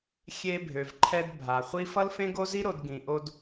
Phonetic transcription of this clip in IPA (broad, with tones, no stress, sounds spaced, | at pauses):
xʲ e˧ bʱ ø˨ v ǃʰ ɛ˧ d bʱ a˨ χʷ i˦ f ʌ˦ l f ẽ˦ ɡ o˦ z i˦ ɾ o˧ d ɡ ĩ˨ ʔ o˧ d